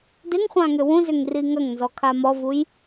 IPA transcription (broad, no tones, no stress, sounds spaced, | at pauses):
d ɪ ŋ χʷ ã ŋ ʏ w ũ z ʏ ŋ r i ŋ ɐ ŋ n z ɔ kʰ a m ɔ v u j